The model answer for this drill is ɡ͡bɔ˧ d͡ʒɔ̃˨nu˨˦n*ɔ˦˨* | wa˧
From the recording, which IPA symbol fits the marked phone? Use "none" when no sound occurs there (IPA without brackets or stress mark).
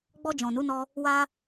ɔ˧